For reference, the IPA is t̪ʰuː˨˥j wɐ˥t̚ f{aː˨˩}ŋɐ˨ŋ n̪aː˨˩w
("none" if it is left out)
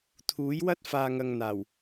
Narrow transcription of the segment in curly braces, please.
aː˨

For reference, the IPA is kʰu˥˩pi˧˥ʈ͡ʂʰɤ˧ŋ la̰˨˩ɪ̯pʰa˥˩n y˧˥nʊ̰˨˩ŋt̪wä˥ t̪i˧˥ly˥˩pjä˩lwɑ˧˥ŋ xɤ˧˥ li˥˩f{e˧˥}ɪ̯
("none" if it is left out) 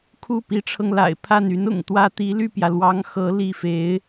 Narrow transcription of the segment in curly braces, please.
e˧˥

